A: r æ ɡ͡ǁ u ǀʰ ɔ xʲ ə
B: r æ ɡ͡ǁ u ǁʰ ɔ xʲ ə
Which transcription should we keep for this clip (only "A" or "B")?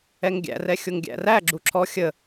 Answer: B